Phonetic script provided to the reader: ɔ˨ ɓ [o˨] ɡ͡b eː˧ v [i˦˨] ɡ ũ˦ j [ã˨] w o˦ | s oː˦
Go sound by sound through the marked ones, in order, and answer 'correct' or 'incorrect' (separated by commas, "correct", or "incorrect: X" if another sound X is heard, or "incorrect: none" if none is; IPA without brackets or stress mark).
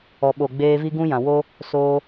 correct, incorrect: i˦, correct